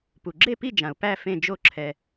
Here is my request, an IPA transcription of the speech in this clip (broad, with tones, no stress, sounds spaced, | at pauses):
p u˨ ɡ͡ǁ e˥˨ p i˥˨ d͡ʒ ã˨ ʊ̯ p æ˥˨ f ẽ˥˨ d͡ʒ o˥˨ ǁʰ ɛ˨